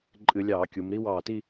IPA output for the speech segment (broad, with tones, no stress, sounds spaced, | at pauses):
ǃʼ ɨ˧˩˧ lʲ ɑː˧˩˧ kʲ u˩˧ m ɾ i˥ w ɑː˧˩ t i˥˧